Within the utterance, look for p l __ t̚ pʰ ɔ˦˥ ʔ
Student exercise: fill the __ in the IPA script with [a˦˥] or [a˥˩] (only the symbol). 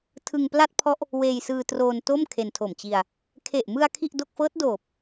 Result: a˥˩